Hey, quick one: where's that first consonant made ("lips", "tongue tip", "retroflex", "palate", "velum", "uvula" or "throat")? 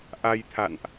throat